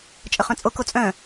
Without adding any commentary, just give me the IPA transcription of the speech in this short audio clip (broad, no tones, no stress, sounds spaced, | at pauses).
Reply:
t͡ʃʼ ə χ œ̃ t͡sʼ o k o t͡sʼ œ̃